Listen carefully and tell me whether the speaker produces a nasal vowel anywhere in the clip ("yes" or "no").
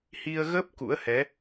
no